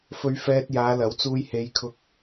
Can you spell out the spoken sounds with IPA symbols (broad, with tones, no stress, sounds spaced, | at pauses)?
f ɵ˧ ɥ f ɛː˧ t̚ j aː˨˧ l ɐ˨˥ w t͡s uː˧ j h e˨˧ j kʰ ʊ˧ k̚